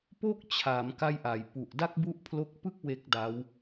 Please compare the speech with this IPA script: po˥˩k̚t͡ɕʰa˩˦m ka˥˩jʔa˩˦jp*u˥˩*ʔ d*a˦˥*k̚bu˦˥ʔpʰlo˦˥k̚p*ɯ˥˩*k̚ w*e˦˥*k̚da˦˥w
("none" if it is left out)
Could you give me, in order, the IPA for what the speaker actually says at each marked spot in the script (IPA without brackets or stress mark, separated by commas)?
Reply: u˨˩, a˥˩, ɯ˥˩, e˦˥